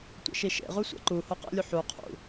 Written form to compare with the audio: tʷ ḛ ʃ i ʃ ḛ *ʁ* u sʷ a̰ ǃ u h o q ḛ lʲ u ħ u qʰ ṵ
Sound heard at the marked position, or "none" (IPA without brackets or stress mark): ʁ